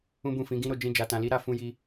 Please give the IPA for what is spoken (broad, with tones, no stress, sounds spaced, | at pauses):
ũ˦ b ũ˦˨ f ĩ˨˦ ɡ ĩ˦ ɾ o˧ d͡ʒ ĩ˧ d͡ʒ a˧ t ã˧ l i˦ ɾ a˧ f ũ˧ j i˧